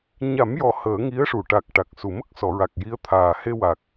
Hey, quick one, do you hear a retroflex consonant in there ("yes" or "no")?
yes